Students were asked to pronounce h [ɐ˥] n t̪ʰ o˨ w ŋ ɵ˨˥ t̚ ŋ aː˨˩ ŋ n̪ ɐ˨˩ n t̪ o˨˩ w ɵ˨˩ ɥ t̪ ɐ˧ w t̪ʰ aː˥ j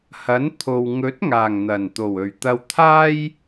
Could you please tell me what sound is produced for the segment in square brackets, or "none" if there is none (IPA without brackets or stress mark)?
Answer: ɐ˨˥